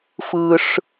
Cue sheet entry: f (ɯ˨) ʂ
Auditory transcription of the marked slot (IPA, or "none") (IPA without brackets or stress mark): ɯ˦